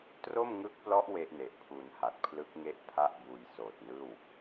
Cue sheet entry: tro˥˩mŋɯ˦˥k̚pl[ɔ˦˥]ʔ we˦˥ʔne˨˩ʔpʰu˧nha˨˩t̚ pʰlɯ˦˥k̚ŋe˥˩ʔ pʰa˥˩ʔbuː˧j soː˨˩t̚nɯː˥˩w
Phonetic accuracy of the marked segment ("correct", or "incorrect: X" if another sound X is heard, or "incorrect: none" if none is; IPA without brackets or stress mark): correct